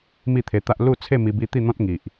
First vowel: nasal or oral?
oral